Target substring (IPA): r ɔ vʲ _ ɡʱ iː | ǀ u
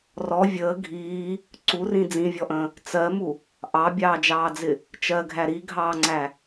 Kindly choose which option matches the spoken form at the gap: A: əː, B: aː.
A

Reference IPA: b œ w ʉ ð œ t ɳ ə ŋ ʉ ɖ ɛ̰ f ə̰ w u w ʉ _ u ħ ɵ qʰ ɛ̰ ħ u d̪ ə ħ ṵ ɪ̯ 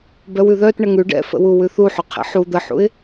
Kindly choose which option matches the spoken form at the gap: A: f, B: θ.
B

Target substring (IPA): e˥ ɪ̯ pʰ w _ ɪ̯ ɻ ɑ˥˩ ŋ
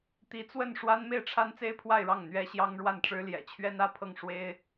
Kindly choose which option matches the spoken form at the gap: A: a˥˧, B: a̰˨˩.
A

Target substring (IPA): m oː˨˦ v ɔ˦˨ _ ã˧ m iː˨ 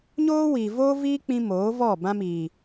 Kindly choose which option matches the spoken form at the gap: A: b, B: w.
A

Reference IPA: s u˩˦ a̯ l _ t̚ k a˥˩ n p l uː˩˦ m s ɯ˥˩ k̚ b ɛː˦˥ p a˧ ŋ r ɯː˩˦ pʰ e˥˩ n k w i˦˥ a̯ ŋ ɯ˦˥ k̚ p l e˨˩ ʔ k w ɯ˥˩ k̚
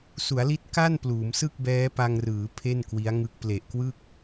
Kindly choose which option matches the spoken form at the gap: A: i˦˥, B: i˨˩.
A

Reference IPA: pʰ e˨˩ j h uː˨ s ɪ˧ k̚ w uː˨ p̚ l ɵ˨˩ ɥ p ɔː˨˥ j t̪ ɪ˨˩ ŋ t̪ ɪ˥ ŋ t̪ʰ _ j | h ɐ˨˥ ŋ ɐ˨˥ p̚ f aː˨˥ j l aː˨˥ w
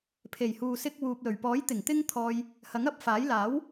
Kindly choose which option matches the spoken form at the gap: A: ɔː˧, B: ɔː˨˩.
A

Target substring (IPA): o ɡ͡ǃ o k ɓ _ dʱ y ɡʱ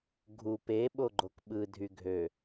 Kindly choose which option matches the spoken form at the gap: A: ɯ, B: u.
A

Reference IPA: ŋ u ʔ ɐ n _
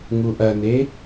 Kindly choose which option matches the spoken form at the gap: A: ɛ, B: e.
B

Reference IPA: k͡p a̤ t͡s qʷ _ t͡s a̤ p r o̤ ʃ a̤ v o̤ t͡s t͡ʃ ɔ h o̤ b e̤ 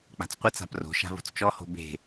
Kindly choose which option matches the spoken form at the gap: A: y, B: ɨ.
B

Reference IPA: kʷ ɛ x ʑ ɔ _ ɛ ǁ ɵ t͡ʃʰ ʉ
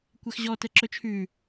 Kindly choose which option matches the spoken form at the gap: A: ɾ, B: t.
B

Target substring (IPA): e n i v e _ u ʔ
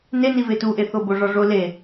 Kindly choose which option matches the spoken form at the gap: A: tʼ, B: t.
B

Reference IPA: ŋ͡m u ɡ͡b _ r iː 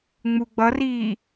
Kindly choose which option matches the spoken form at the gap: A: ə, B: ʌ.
B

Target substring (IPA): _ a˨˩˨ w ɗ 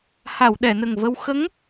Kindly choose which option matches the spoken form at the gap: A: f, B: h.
B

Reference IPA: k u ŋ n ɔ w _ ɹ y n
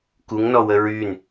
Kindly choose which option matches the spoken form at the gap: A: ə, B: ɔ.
A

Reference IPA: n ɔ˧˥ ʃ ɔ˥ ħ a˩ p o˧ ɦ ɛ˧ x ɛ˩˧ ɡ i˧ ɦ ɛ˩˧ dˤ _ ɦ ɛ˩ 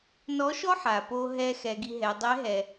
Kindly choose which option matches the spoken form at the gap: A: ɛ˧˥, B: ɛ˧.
A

